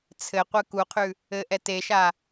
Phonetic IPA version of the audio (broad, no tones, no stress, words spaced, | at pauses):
t͡sʰɘqʷɘ kuqʰʉ | ɘʔɛ teʃa